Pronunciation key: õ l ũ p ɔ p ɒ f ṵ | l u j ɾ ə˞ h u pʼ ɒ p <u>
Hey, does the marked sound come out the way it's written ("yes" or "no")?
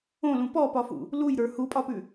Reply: no